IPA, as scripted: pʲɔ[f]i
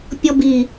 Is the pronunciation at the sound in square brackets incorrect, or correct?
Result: incorrect